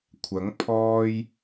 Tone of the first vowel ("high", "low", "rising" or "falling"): rising